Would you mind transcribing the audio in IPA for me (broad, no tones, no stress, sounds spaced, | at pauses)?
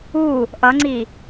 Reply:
u | ʔ ʌ ŋ͡ǀ i